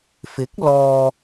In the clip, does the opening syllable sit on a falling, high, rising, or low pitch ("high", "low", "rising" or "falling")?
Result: rising